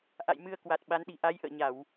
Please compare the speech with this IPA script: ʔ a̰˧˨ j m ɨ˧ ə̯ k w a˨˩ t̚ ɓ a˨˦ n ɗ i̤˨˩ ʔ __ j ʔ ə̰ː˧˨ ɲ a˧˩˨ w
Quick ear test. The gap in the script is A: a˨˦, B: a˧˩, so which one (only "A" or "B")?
A